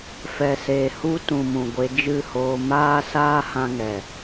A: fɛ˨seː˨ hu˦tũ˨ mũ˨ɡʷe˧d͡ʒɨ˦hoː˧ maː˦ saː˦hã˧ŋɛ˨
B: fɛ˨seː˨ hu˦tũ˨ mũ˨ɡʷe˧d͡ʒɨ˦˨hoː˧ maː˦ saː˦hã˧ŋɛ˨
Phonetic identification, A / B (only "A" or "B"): B